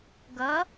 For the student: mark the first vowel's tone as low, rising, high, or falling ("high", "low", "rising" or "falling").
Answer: rising